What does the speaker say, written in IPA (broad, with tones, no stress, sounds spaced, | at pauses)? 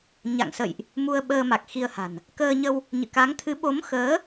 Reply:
ɲ a̰˧˨ ŋ s ə̰˧˨ j ʔ | m u˧ ə̯ ɓ əː˧ m a˨˩ k̚ x i˧ ə̯ h a̤˨˩ n | k əː˧ ɲ ə˧ w | ɲ ɨ̰˧˨ k a˨˦ ŋ t̪ʰ ɨ˨˦ ɓ o˨˦ m x əː˨˦